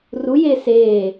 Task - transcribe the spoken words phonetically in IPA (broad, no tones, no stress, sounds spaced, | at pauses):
r u j eː s eː